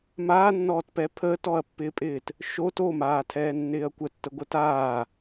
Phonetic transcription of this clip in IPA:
m aː nː ɔː t p ɛ pʰ əː t ɔ ɐ̯ pː ɪː pʼ ɪː t | ʃ o t o m aː tʰ ɛː nː ɪː ɐ̯ kʷ ə tː ə ɡʷ ə t aː

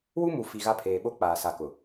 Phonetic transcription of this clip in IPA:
w u˦ m u˨ f i˨ ɣ a˦ pʰ eː˨ ɓ o˦ k͡p aː˨ s a˨ k ʊ˨

